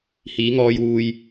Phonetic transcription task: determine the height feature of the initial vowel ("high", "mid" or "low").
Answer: high